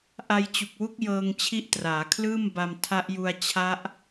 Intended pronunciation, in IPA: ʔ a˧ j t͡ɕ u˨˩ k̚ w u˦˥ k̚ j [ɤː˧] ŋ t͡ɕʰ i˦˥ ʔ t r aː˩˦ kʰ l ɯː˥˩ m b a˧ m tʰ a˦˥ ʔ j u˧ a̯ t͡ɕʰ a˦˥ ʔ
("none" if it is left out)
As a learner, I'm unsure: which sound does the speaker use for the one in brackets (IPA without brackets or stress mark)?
ɤː˧